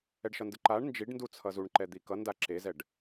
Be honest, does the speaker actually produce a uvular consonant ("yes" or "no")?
no